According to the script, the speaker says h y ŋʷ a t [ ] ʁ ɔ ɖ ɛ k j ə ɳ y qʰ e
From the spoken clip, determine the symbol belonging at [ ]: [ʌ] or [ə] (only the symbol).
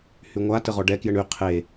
ə